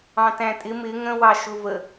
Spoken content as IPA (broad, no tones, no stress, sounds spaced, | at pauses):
ɑ̃ t æ̃ tʼ ɪ m ɪ ŋ ə̃ w ɑ ʃ ʊ v ə